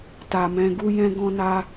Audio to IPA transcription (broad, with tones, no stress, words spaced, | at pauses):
ta˨mɛ̃˧ɡu˦ jɛ̃˦ɡɔ̃˦na˦